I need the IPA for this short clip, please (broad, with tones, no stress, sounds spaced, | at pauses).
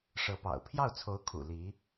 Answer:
ʂ ɤ˧˥ p ɑ̰˨˩ ʊ̯ pʰ j ɑ˥˩ ʊ̯ t͡sʰ o˧˥ ʊ̯ kʰ ṵ˨˩ l i˧˥